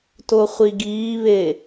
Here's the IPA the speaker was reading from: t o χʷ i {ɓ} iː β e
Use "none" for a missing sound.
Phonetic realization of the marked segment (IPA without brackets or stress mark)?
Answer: ɡ